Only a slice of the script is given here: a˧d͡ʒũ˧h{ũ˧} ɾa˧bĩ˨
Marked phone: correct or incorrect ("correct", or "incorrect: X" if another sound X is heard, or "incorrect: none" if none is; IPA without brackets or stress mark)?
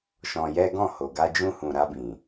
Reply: incorrect: ũ˨